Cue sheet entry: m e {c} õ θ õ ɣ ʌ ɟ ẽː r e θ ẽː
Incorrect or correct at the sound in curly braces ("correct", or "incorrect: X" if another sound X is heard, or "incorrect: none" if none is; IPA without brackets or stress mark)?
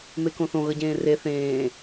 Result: incorrect: k